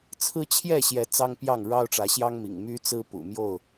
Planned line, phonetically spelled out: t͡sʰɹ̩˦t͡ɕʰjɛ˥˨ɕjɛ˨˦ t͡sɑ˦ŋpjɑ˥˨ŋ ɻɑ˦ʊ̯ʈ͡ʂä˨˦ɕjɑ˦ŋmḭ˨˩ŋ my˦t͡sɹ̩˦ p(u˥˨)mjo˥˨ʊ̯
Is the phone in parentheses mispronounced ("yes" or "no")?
yes